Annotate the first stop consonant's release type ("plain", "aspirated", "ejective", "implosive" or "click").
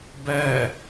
plain